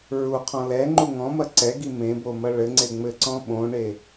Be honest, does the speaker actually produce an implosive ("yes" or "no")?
yes